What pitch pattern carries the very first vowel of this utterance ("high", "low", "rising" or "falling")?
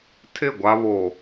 falling